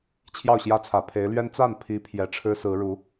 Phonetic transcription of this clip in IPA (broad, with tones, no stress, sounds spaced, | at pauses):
t͡ɕʰ j ɑ˥˩ ʊ̯ ɕ j ä˥ t͡sʰ ä˨˩ pʰ e˧˥ ɪ̯ l ɥ ɛ˥ n t͡s a˥˩ n pʰ i˧˥ pʰ j ɛ˨˩ ʈ͡ʂʰ ɻ̩˥ s ɹ̩˧˥ ɻ u˧˥